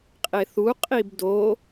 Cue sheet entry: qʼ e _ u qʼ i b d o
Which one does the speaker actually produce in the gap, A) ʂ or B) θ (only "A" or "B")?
B